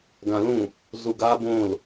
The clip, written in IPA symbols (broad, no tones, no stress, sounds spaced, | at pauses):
ɡ ã l ũ | z u ɡ a b õ l